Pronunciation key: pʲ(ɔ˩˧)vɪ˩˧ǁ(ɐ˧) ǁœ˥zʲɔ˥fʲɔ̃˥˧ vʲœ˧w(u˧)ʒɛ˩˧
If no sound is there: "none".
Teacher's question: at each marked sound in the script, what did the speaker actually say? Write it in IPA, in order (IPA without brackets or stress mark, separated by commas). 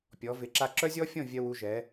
ɔ˩˧, a˧, u˧